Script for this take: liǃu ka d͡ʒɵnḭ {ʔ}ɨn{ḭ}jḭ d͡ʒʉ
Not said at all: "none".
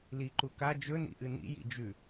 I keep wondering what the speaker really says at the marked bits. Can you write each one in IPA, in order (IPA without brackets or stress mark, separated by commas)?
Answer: ʔ, ḭ